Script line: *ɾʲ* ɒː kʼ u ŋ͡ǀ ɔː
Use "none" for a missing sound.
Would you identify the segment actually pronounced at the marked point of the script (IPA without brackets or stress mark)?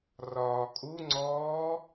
r